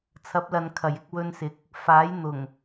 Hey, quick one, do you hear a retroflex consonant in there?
no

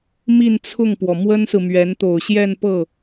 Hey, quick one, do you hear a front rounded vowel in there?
no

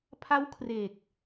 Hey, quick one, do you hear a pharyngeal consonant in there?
no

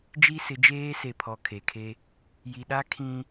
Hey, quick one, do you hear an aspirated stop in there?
yes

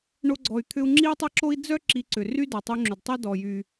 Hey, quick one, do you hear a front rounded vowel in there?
yes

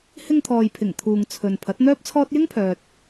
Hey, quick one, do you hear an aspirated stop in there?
yes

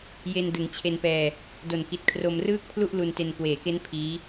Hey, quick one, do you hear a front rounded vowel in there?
no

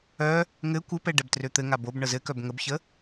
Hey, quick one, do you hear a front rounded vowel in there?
yes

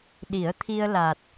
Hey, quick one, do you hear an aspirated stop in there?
yes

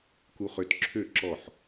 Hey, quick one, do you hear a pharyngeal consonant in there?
yes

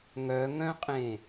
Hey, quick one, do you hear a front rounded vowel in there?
yes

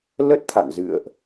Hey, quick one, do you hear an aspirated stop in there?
yes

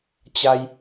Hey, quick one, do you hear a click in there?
no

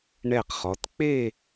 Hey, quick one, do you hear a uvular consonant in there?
yes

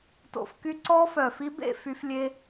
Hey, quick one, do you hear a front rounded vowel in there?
yes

